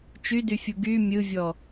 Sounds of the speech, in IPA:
t͡ʃydyfʲu ɡy mʲɯvʲɔ

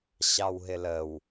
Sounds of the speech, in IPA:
ɕɑwɦɪləw

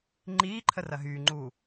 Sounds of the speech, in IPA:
ŋ͡ǃiːǃʰə rɐɦyːŋ͡ǃuː

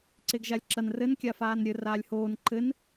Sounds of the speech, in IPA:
ǀeɡʒalʲǁɐn rɘnkʲafaːn ɾʲɘ raːlʲhoːn ǃɘn

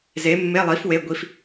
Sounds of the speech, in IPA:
ze˨˥mːe˧˥˧lˠi˨˥f we˧˥˧ ɡʷi˧˥˧f

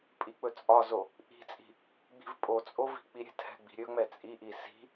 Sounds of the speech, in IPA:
pʼik͡pɵt͡sʼɒzo | ʔi̤t͡sʼi̤ | ɡ͡bi̤vpʼot͡sʼo vi̤k͡piɾʲɛ̤thɛ̤ ɡ͡bi̤ɾʲɵŋ͡mɛ t͡sʼiʔi si̤

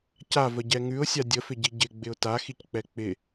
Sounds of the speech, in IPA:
ca vəɟɛŋʉʊ̯sʲa dʲəfɪɟi ɟɪ ɡ͡bɪʊ̯taxick͡pɛ k͡pɪ

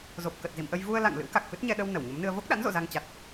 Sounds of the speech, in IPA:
zo˨˩p̚kə˨˩t̚ zḭ˧˨mʔə˧j vu˧ə̯ la̰˧˨ŋ lɨ̰˧˥wka˨˩k̚fɨ˦˥t̚ɲɛ˧ ɗə˧w nə˧˩wɲə˨˦mnɨ˧ə̯ vo˦˥k̚ɗa̰˧˥n zo̰˧˨za˧ŋ t͡ɕa˨˩t̚

